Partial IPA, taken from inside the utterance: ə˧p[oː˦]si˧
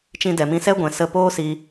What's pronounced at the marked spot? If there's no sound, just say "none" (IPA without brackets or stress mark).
oː˦